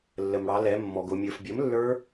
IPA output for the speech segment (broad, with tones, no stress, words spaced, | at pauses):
lːə˩mɽɑ˩˧ lɛ˩˧mːɔ˩ɡ ʊ˩mʲə˞˩fbʲə˩˥m lːə˞˦˥